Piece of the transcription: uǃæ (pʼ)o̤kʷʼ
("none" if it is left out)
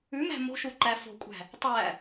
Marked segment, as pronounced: f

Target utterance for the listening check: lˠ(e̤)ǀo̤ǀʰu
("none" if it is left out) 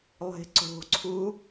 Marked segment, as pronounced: e̤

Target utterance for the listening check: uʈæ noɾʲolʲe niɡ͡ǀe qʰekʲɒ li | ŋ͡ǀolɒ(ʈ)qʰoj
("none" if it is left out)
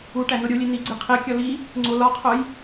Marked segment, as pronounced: none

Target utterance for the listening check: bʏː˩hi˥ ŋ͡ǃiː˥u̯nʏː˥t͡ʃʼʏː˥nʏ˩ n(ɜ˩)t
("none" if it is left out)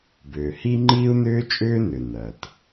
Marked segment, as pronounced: ɜ˩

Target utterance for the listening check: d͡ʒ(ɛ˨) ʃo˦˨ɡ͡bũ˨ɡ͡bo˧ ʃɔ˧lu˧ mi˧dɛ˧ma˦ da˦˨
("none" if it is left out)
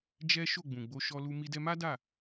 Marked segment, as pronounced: ɛ˦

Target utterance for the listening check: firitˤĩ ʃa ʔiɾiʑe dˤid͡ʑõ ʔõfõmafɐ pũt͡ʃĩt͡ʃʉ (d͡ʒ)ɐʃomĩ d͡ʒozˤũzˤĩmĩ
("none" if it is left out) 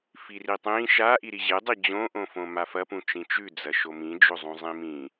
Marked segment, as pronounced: d͡z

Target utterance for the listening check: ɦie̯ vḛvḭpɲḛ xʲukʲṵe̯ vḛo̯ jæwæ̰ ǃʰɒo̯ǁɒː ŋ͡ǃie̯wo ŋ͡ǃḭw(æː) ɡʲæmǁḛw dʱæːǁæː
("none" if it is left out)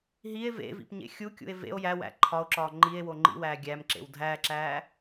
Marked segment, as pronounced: æː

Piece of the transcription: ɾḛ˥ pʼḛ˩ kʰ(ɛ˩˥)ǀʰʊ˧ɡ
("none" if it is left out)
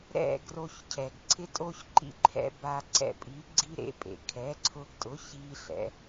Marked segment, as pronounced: ɛ˩˥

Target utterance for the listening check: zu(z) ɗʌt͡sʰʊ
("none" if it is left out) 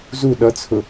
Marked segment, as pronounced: none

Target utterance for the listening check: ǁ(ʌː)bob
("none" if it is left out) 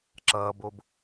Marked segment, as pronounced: ʌː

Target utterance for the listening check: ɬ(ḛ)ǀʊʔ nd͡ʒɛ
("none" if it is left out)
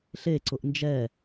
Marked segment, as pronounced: e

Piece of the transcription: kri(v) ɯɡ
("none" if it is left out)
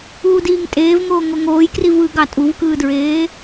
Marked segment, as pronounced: v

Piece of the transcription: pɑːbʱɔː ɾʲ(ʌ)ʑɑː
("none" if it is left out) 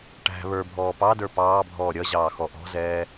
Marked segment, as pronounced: ʌ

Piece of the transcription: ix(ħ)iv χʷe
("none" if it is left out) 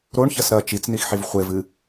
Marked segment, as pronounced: ħ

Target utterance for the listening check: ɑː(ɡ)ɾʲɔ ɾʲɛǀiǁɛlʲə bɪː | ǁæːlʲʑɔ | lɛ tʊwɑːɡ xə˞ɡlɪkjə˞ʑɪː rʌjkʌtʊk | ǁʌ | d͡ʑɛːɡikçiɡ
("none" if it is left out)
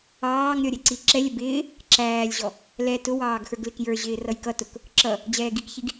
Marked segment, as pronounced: ŋ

